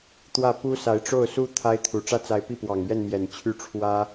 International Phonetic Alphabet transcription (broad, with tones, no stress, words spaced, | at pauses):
t̪wä˥˩pu˥sa˧˥ɪ̯ ʈ͡ʂo˥˩ʊ̯su˥ t̪ʰa˥ɪ̯t̪ʰu˨˩ ʈ͡ʂä˥t͡sa˧˥ɪ̯pi˥˩pwɑ˨˩ŋ ɥɛ˥˩nmjɛ˨˩n t͡ɕʰy˥˩ʈ͡ʂʰwä˥